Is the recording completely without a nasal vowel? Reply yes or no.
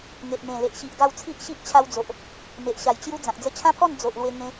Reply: no